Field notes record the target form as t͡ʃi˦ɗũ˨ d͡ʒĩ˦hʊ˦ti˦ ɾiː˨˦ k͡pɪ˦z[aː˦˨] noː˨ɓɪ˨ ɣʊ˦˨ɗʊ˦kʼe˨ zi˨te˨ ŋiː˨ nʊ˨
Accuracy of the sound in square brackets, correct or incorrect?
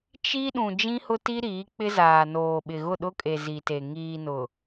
incorrect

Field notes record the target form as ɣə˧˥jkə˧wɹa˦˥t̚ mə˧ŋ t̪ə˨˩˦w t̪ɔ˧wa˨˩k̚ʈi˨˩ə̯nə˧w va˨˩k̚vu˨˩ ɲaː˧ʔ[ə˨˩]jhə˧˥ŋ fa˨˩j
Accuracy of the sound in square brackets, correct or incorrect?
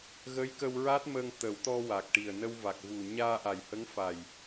incorrect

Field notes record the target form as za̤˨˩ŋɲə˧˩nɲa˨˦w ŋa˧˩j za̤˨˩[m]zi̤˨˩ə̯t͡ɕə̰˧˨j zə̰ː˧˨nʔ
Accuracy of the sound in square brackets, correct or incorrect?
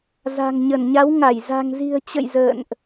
incorrect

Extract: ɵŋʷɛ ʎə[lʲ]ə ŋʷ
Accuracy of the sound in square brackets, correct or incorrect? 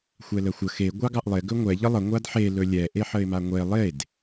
incorrect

